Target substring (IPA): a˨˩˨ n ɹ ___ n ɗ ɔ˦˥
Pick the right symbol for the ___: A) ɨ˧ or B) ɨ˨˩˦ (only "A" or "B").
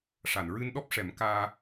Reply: A